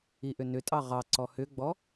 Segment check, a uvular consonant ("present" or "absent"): present